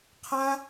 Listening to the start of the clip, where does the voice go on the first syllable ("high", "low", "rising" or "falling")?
high